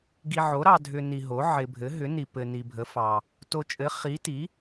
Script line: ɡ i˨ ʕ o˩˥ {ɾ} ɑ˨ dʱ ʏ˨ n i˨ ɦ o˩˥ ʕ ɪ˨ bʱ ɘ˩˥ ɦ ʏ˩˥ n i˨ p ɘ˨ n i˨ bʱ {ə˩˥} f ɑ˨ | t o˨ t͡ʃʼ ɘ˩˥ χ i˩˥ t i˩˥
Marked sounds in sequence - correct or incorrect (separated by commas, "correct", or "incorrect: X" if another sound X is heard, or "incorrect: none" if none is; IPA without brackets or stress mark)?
correct, correct